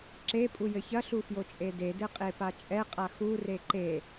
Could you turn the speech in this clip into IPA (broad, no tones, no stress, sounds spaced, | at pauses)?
ǁ e pʼ u j ɘ ç ɐ ɬ u f j o t͡ʃʼ e d e d ɘ qʼ e p a t͡ʃʼ ɛ qʼ a x u r e ǃ e